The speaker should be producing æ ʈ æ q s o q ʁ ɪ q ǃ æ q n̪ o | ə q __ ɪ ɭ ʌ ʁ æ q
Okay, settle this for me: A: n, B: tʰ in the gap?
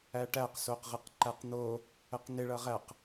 A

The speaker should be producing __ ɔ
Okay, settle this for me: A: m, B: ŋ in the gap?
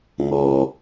B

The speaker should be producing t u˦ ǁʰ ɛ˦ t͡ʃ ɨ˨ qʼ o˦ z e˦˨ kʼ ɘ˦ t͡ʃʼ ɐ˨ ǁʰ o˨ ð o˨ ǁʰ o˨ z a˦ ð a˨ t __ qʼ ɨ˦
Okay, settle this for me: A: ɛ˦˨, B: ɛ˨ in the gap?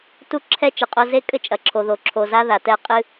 A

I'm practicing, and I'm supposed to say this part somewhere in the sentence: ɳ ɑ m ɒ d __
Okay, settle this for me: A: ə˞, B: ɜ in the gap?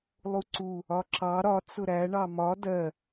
B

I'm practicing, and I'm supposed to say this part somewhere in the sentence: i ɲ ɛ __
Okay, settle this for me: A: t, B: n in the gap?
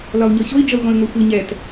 A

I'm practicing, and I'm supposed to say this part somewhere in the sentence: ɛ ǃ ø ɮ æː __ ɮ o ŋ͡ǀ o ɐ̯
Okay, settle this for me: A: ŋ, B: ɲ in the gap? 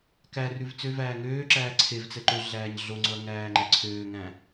B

